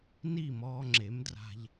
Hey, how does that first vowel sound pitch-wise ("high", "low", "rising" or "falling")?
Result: falling